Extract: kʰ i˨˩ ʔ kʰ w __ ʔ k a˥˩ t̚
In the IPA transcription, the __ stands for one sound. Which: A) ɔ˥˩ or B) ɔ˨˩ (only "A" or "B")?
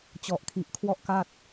A